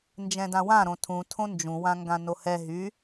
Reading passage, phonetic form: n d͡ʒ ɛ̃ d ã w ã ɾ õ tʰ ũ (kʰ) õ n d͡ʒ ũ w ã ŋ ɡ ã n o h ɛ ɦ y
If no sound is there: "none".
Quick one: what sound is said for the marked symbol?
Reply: tʰ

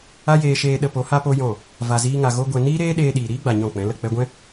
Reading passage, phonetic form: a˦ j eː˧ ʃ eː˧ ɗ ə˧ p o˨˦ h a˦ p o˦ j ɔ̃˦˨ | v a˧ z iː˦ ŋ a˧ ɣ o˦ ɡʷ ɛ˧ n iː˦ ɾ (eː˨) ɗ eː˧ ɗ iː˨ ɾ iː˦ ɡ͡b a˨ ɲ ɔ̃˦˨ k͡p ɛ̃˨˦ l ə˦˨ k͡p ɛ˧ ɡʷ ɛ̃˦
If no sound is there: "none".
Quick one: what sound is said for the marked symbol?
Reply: eː˦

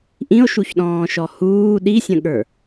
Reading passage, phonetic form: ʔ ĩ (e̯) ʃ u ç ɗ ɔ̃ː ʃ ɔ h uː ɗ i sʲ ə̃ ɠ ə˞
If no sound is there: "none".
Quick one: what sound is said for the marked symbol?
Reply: o̯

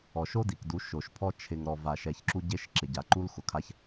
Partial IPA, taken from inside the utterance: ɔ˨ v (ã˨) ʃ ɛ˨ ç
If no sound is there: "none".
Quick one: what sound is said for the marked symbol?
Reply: a˨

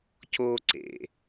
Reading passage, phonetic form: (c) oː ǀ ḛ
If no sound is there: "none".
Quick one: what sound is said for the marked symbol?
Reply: c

